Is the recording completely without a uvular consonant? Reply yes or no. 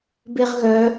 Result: no